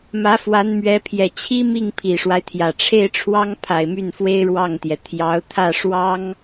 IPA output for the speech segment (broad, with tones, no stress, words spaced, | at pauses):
mä˧˥fwa˧˥nmɥɛ˧˥pʰjɛ˨˩ t͡ɕʰi˥ mi˥˩ŋ pʰi˨˩ʂwa˦ɪ̯t̪ʰjä˨˩ ʈ͡ʂʰe˥˩ɪ̯ʈ͡ʂʰwɑ˥ŋ pʰa˨˩ɪ̯my˥˩nfwe˥ɪ̯ ɻwɑ˥˩ŋt̪jɛ˩ t̪ʰjɑ˧˥ʊ̯t̪ʰä˥˩ ʂwɑ˥ŋ